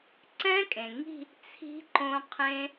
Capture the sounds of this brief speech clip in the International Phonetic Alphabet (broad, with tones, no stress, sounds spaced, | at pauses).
ǀ ɛ̃˦˥ kʼ ẽ˩ ŋ i̤˥˧ | t͡sʰ i̤˦˥ ǃ õ˧ qʰ ẽ˧